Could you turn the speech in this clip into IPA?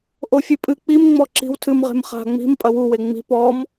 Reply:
ʔ o fʲ ɨ pʼ ɨ k͡p i m ŋ͡m ɔ ǁ i̤ w tʰ ɨ m ʁ e̤ m χ a̤ ŋ͡m i̤ m pʼ ɐ w u w e ŋ͡m i̤ p ɔ m

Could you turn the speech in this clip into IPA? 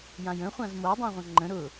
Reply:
j ã j ə̃ χʷ ã z m o dˤ ũ ʁʷ ɐ̃ ŋ͡ǃ ə̃ ɾ ʊ

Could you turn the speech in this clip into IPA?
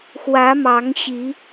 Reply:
x w ä˨˦ m ɑ˨˦ ŋ ɕ i˨˦

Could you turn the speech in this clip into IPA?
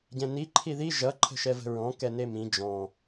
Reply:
ɟ ɛ̃ n i ǃʰ i ð i ʒ ʌ ǃʰ ə̤ ʃ ɛ v ə̤ ɹ ɔ̃ k ɛ n e m ĩ d͡ʒ ɔ̃

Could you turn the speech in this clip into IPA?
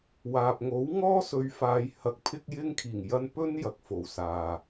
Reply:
w aː˨ p̚ ŋ o˨˥ w ŋ ɔː˥ s ɵ˨˧ ɥ f aː˨˧ j h ɐ˨˥ k̚ pʰ ɪ˥ k̚ j ɪ˥ ŋ kʰ iː˨˩ ŋ j ɐ˧ n p ɵ˥ n j ɐ˨˥ k̚ f o˨ w s aː˨

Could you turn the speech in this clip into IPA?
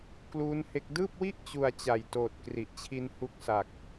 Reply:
k l uː˦˥ n h e˦˥ k̚ d ɯː˥˩ p̚ w i˥˩ ʔ t͡ɕ u˧ a̯ t͡ɕ a˨˩ j t oː˨˩ t̚ k r i˨˩ ʔ t͡ɕʰ i˧ n h u˦˥ k̚ s a˨˩ k̚

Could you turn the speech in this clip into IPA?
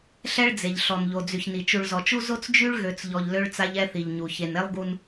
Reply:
ɬ ɛ˦ ɭ d͡z e˨ ʎ ɬ ɔ˨ n ʎ o˨ d͡z y˨ ç n i˨ t͡ʃ u˨ ɭ z ɔ˨ t͡ʃ u˦ z o˦ t͡s d͡ʒ y˦ ɭ ɣ ø˨ t͡s ʎ ɔ˨ ʎ l ø˦ ɭ t͡s a˦ ʎ ɛ˦ θ i˨ ʎ ɲ u˨ ç e˨ n e˦ lˠ ɡ u˦ n

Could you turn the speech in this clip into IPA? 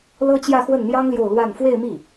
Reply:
l ɤ˥ t͡ɕ j ä˥˧ x w ə˥˩ n n̪ j ɑ˥ ŋ l j o˥˧ ʊ̯ l w a˥˧ n f w e˥˧ ɪ̯ m i˥˩

